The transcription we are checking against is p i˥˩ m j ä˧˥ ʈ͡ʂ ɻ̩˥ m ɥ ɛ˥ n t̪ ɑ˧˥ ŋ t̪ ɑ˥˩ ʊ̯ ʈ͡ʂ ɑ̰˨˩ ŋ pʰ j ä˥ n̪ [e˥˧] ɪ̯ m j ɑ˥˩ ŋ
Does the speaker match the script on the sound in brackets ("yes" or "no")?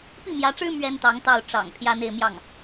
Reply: yes